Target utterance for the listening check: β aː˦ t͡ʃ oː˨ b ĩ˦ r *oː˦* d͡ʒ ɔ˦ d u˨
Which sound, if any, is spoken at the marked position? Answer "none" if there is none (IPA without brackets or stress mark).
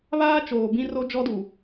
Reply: o˦